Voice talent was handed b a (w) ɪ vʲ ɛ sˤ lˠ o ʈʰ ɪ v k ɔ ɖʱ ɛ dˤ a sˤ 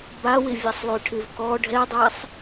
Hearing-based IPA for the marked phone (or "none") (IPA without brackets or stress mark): w